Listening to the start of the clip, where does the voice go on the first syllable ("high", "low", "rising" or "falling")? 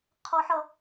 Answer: high